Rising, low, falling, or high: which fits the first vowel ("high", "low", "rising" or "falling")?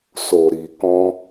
low